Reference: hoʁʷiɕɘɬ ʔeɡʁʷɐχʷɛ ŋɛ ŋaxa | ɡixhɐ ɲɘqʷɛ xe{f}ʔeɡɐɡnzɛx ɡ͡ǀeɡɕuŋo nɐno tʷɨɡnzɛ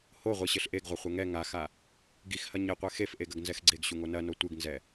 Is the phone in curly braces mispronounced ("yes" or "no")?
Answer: no